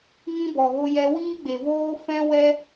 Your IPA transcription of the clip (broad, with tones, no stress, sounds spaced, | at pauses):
ŋ ĩ˦ b ɔ˨ ɣ o˧ j ɛ˧ w iː˦ ɡ͡b e˨ v oː˦ f ɛ̃˦ w ɛ˦